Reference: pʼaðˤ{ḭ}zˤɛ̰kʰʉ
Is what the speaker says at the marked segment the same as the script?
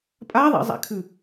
yes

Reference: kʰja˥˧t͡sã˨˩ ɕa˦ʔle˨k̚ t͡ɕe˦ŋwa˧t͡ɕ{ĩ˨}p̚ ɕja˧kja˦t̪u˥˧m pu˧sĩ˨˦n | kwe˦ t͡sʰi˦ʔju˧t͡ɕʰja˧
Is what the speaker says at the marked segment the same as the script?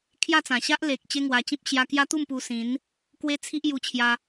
no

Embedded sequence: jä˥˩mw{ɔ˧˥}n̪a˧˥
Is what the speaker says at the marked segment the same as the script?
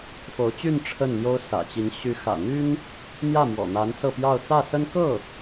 no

